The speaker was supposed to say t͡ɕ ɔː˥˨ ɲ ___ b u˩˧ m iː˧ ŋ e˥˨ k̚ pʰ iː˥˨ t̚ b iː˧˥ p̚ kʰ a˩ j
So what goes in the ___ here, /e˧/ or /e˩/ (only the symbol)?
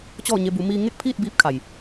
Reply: e˧